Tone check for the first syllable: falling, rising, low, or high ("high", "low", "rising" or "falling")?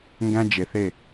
high